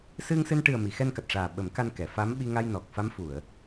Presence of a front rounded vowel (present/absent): absent